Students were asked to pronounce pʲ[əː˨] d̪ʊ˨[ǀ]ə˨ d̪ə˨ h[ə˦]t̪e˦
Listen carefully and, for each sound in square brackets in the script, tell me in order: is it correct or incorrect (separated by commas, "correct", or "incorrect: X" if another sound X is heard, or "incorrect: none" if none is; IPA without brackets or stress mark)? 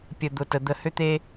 incorrect: ə˨, incorrect: t, incorrect: ʏ˦